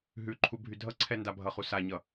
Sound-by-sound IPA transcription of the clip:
ɦʉǃʰu bʱydʱʌǀʰɛ ndabʱʌχu saɲʌ

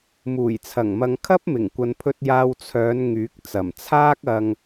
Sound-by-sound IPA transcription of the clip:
muː˨˩jt͡sʰɐ˨˩ŋmɐ˨ŋ kʰɐ˥p̚mɪ˨˩ŋkʷɐ˨npʰɵ˧t̚ jaː˧wt͡sʰœː˨˧n ŋyː˨˥k̚ t͡sɐ˨˩mt͡sʰaː˥k̚ɐ˧ŋ

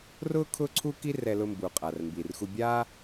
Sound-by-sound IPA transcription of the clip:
rʊː˥ kʰʊː˥ǀʰuː˥ ki˥rɛ˧ lʊ˧mbu˩qʼa˩r mbi˩rxu˧bʲaː˥

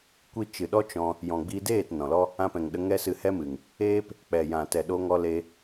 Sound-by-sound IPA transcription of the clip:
kʷi˦ t͡ʃɨ˨ɗɔ˦ t͡ʃɔ̃˧ | jɔ̃˨ɡ͡bi˧deː˦˨t nɔ̃˨ lɔ˦ | ã˧pɛ̃˨ŋ ɗə˧ ŋɛ˦sɨ˧hɛ˦mɨ˨ŋ | eː˦p | k͡pɛ˨jã˨ tɛ˨ɗo˧ŋɔ˧le˧

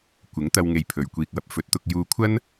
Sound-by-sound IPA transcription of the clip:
kʷɪ˨˥ŋt̪ɐ˧w ŋe˧jpʰɵ˨ɥkʷiː˧k̚wɐ˨p̚ fɵ˨˥t̚t̪ʊ˧k̚ juː˧kʷʰɐ˥n

